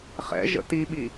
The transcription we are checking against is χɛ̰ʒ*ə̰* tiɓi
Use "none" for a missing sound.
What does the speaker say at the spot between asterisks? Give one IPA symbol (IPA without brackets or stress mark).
ə̰